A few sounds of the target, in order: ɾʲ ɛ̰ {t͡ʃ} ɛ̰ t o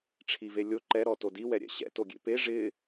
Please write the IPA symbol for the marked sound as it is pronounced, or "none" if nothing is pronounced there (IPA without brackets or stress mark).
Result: ɕ